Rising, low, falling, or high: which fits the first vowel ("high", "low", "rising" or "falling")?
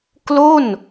falling